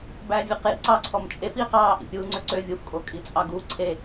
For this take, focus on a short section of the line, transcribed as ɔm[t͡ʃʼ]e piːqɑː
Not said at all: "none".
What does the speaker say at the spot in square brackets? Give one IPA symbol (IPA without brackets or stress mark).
t͡ʃʼ